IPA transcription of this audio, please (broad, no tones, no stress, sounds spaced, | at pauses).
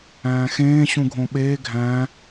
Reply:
æ̃ː x ẽː ɕ ũ ɡʱ õ ɓ eː ɡʱ æ̃